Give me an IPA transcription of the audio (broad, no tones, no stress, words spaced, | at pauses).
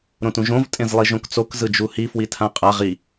ɾõtũʒõv tʼẽzlˠiʒõkt͡sok zɯd͡ʒuhi fwitʰãqʼaʁ i